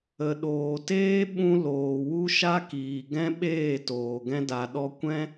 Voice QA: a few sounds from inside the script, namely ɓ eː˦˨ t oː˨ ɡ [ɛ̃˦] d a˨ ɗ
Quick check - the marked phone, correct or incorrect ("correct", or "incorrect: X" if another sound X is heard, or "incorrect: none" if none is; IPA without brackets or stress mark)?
incorrect: ɛ̃˧